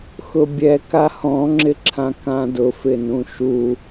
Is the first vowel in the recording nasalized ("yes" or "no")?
no